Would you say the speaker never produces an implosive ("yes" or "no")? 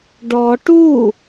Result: yes